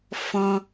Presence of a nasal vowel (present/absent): present